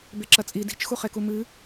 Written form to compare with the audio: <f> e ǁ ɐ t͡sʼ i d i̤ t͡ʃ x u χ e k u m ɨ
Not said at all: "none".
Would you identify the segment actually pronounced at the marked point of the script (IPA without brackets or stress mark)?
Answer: b